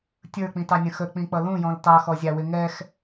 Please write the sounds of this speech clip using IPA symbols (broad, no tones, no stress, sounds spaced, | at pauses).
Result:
tʲ ə˞ k͡p ĩ t ɑ nʲ ə̃ x ə k͡p ĩ k͡p ʌ l ũ j ɔ̃ l t ɑ x ɔ zʲ ɑ w ɪ ŋ ɛ x